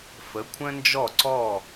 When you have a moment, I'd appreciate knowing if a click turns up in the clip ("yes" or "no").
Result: yes